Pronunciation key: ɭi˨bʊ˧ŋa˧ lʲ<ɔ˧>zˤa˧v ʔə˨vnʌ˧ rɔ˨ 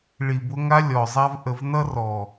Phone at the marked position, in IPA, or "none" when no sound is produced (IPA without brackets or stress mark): ɔ˨